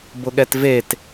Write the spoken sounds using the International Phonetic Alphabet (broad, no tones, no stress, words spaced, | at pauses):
bʊɠɛtvet